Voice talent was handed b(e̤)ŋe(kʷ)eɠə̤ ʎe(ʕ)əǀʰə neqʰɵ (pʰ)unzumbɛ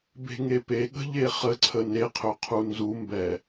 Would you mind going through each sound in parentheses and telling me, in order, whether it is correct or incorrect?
correct, incorrect: p, incorrect: χ, incorrect: qʰ

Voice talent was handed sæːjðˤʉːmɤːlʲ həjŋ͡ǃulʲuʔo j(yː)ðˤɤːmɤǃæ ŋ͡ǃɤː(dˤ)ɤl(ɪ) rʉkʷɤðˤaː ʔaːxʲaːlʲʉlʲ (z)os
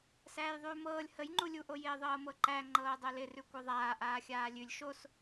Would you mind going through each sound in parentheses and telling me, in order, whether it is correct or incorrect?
incorrect: ɪː, correct, correct, incorrect: ʃ

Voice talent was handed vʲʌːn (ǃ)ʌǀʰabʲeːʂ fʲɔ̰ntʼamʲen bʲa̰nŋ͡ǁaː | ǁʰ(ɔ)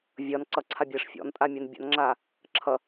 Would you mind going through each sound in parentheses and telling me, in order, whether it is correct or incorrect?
incorrect: ǀ, incorrect: ʌ

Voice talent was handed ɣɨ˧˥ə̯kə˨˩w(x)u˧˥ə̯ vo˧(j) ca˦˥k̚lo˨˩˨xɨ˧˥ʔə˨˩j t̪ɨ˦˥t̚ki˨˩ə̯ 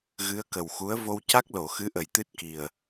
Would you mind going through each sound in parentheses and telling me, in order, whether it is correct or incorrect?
correct, incorrect: w

